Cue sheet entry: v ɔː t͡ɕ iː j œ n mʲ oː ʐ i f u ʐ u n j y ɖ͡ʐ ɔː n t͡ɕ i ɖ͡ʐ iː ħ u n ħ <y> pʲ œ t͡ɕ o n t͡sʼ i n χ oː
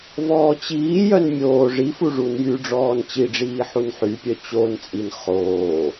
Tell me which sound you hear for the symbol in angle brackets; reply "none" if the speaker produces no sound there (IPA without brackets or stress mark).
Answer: y